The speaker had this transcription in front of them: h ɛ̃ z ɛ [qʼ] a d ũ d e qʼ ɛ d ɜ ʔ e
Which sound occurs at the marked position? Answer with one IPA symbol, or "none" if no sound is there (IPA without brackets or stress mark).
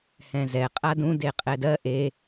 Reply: qʼ